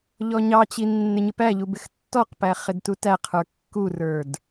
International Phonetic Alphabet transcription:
ʎ ɔ ɲ ɑ t͡ɕ i nː ɪ ɲ ɪ p æ ʎ u b ɪ x tː ɔ q p æ χ ɪ d t u t æ qʰ ə˞ kː u r ə˞ d

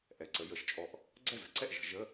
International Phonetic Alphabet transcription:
ʔ ɛ˩ ǀ ə˩˧ j ə˩˧ ʃ t͡ʃʼ ɔ˧˩ ʔ | ɡ͡ǀ ɛ˥˩ z ə̤˩˧ ǀ ɛ˥˩ ʔ ʒ ə̤˩˧ ʒ ə˧˥˧

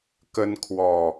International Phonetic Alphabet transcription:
k ə˦ n kʰ w ɔ˨˩

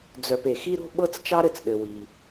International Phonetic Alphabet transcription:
d͡z œ˨ p e˩ x i˦ ɾ o̤˥ ɓ ɤ˥ t͡s t͡ʃ ɑ˦ ɾ ɘ˩ t͡s ɗ ɘ˩ w i˩

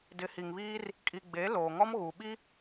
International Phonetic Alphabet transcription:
d ɪ˨˦ h i˨ ŋ β iː˦ r | kʼ i˨ ɡ͡b e˨˦ l oː˨ ŋ ɔ˦ m ɣ u˨ ɓ i˦

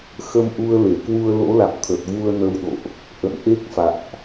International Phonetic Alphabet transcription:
x ə˧ m ʔ u˧ ə̯ l e˧˩ k w u˧ ə̯ l o̰˧˥ l a̰˧˨ m t̪ʰ ə˨˩ t̚ v u˧ ə̯ n ə˧ w ɗ o̰˧˨ ʔ | ʔ ə̰˧˨ n ʔ e˦˥ k̚ f a̰˧˨ m ʔ

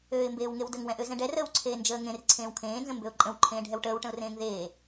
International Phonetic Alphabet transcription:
øː ɪ̯ m b eː w ŋ e w d ə ŋ w ɛ̃ ʔ ø z ɛ̃ ɖ ɛ r əː w ǀʰ eː n d͡ʒ əː ŋ ẽ r ǀʰ ẽː w kʰ ẽː n z ə̃ m b ø ʊ̯ ǃʼ ə̃ w ǃʰ ẽː ɖʱ ɛ w ʈ əː w ʈ ə̃ ʊ̯ r ẽː ŋ ð eː

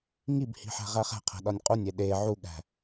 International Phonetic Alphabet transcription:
ŋ i b h i̤ ħ æ̤ ʁ æ χ æ̤ qʰ æ̤ ɗ ɒ nʲ qʼ u nʲ e ɗ e ʕ u ɠ æ̤

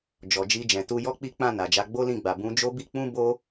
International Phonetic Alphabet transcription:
d͡ʒ ɔ˨ d͡ʒ i˧ d͡ʒ ɛ̃˨ t u˧ j ɔ˦ k͡p i˦ k͡p ã˦˨ n a˨ d͡ʒ a˧ ɡ͡b o˦ l ĩ˦˨ ɡ͡b a˨ b ũ˨˦ d͡ʒ o˦ b i˦ k͡p ũ˦ b o˦

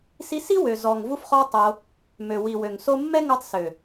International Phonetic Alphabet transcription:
s i˧ s i˦ w ø˨ z ɔ˨ ŋ v u˧ f χ ɔ˧ tˤ o˧ | m ø˨ w i˨ w ø˨ ŋ s o˧ mː ɛ˦ ŋ o˧ tˤ s ø˨

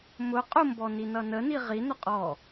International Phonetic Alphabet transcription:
m ʊ qʼ ʊ m b ɔ n i n ʌ n ə n i ʁ i n ʊ qʼ ɔ

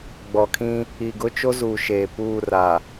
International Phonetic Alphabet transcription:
ɡ͡b ɔ˨ kʰ ĩ˦ | i˨ ɡ ʊ˦ t͡ʃ o˦ z uː˨ ʃ eː˨ p uː˦˨ r a˨

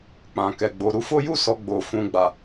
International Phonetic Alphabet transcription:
k͡p ã˨ k ɛ˨ ɡ͡b o˨ ɾ u˧ f o˦ j u˦˨ s ɔ˨ ɡ͡b o˨ f ũ˨ ɡ͡b a˨

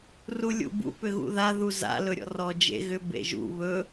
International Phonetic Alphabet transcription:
r u lʲ ṵ b ṵ p ʏ ɣ ṵ ð a ð u z a̰ l ɵ ɾʲ ɔ̰ r ɔ d͡ʒ ḛ ɣ ʏ b ḛ ʒ ṵ β ɵ

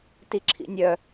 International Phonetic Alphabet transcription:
t i ǁʰ ḭ nʲ œ

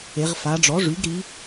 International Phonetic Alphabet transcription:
e˩˧ ʁ f a˩˧ ɖ͡ʐ ɔ˩˥ ʐ y˩˥ ɡ ɾ i˩˧

